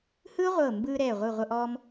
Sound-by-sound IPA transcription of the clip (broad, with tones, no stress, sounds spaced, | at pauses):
h ɯː˥ ʁʷ ɤː˧˩ m b ɯː˧ ɾ ɛː˧˩ ʁʷ ɯ˧˩ ʁʷ ɤ˧ ʔ ɔː˧ m